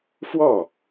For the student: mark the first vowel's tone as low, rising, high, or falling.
falling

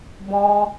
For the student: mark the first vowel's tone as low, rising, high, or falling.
high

